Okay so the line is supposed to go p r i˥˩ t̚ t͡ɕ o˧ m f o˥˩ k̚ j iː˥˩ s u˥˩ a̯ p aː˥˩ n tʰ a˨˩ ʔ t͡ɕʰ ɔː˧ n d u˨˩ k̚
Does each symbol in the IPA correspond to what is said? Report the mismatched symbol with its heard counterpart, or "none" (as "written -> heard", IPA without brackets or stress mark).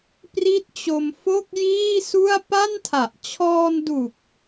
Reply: aː˥˩ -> a˥˩